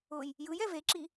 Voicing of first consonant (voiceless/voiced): voiced